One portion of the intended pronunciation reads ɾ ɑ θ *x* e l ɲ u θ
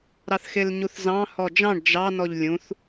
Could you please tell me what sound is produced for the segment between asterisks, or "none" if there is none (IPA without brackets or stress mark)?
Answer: x